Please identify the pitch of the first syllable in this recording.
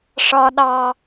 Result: high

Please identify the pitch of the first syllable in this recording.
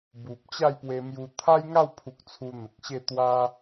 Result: low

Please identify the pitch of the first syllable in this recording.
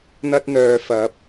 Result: high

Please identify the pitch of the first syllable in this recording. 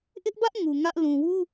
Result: high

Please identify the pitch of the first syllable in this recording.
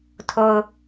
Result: low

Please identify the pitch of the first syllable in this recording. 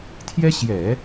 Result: high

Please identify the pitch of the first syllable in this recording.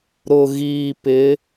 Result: low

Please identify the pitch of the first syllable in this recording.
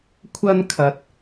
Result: high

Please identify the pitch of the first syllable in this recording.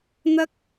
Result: high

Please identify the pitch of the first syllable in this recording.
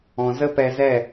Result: low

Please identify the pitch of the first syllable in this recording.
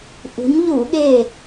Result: rising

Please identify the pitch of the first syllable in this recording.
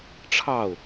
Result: falling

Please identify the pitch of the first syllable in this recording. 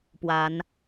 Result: rising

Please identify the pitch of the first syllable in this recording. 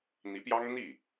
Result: rising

